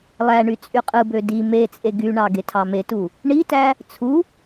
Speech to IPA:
lˠ æ ɳ y t͡sʼ y qʼ ɯ b ø d i m e t͡sʼ e ɡ y ɳ ɑ ɡ e tʰ ɑ m e t u | ɳ i t æ | t͡sʰ u

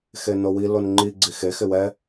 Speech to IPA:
x e n o w i l o n ŋ͡ǃ i ɡ͡ǀ i x e x ɪ w ɛ

